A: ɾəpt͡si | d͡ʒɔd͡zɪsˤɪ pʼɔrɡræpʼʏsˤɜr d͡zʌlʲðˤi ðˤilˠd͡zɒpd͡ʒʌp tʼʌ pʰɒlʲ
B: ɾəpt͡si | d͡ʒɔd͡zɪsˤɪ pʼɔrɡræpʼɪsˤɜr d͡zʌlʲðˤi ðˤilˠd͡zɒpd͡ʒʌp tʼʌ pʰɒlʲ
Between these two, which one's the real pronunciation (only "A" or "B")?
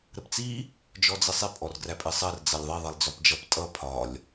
B